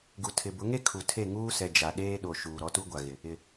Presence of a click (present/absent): absent